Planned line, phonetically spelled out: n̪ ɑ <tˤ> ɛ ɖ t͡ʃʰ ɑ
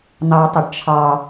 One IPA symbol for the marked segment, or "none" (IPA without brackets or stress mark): tˤ